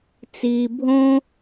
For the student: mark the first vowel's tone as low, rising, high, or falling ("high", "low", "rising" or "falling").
low